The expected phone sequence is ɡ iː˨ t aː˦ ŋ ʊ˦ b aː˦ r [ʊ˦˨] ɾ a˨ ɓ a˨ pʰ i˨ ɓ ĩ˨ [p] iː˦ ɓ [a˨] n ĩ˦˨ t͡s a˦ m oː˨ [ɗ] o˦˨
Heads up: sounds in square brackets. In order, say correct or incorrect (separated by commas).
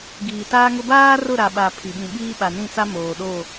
correct, incorrect, correct, correct